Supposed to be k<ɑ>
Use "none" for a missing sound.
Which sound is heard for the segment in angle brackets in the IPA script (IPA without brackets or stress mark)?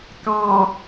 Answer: ɑ